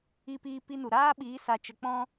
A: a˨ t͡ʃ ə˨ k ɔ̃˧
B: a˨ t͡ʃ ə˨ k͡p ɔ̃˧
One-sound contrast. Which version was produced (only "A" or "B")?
B